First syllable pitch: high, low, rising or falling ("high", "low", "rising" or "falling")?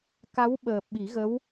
rising